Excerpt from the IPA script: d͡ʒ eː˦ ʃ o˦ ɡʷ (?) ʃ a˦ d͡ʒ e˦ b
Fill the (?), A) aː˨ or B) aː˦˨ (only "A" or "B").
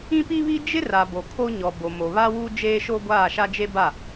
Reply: B